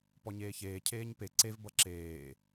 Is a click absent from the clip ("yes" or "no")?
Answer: no